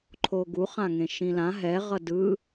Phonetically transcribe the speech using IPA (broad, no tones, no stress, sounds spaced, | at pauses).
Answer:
ǃʰ o ɡ u χ ã ŋ ẽ ʃ ĩ l ã ɦ ɛ ʁ ʌ d ɯ